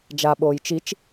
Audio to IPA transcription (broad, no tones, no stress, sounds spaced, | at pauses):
d͡ʒ a ɓ oː j t͡ʃ i t͡ʃ